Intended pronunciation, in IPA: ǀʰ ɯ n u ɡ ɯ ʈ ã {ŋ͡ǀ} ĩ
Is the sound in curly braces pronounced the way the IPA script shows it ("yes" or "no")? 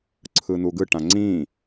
yes